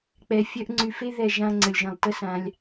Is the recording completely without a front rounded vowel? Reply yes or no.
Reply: no